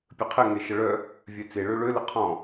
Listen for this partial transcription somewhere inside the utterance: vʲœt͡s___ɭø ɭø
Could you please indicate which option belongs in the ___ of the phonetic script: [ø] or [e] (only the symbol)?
e